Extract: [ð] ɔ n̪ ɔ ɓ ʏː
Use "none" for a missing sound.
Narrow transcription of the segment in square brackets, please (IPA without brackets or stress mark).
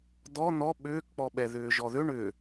d̪